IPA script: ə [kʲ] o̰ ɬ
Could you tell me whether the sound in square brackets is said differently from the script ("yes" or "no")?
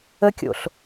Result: no